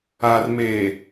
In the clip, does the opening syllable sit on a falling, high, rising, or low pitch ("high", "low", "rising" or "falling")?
low